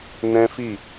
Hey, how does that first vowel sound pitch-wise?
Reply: high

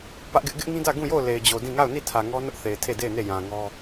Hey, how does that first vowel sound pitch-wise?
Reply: high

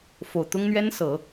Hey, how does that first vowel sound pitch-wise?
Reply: low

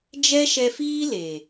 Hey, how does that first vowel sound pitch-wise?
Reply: high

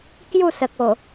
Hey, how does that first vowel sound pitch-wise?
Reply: falling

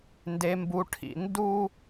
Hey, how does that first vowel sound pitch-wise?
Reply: low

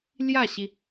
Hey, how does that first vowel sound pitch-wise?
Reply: falling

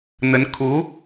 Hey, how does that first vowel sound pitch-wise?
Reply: rising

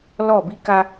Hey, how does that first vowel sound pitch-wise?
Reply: falling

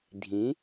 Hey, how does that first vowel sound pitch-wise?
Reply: rising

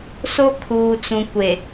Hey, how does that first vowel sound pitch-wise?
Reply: high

